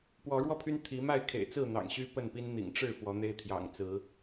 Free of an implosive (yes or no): yes